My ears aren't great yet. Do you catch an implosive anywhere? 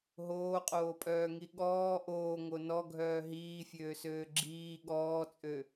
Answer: yes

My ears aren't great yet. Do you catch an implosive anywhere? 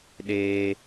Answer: yes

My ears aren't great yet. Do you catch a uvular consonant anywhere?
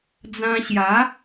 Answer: no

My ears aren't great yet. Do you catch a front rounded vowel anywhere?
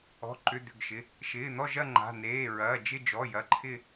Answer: yes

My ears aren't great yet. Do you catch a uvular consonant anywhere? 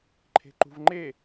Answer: no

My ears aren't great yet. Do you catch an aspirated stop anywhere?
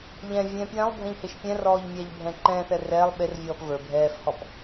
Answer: no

